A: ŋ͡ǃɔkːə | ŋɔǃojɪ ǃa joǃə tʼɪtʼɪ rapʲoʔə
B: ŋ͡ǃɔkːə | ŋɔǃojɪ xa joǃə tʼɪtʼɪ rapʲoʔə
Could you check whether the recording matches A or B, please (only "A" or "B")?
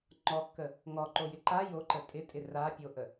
A